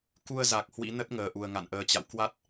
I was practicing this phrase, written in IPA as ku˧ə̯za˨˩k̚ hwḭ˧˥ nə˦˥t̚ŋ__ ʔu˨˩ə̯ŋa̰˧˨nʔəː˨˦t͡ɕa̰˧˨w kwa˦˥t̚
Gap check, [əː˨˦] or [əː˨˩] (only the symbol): əː˨˩